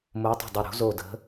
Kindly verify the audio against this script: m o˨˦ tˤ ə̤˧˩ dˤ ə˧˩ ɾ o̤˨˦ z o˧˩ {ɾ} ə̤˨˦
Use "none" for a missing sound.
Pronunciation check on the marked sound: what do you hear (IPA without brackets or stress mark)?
d